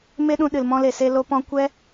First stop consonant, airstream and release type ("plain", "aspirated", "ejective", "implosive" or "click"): implosive